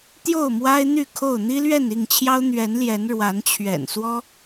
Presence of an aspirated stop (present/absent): present